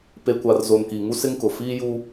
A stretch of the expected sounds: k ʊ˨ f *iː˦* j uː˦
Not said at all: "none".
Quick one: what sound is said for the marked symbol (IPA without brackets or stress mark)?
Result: iː˦